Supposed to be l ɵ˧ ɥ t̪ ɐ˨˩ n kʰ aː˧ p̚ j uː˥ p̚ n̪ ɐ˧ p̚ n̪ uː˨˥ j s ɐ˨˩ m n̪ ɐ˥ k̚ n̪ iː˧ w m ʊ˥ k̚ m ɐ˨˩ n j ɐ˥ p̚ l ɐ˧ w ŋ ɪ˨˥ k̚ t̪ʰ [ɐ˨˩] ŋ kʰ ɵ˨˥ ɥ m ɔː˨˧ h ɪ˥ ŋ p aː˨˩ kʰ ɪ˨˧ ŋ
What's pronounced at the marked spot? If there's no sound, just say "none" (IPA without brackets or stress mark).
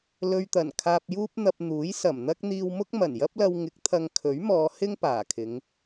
ɐ˧